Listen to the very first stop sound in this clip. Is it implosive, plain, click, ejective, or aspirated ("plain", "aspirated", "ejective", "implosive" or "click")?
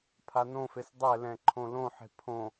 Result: aspirated